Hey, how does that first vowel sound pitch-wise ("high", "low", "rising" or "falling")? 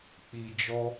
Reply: low